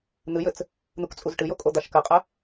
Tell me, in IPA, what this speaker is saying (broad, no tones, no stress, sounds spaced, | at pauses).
n̪ ɨ j ɘ t͡s | n̪ u k t͡sʼ u z ʈ ɨ j o kʼ o d̪ a ʃ k ɘ qʼ ɛ